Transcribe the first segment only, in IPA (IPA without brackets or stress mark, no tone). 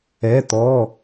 ɛ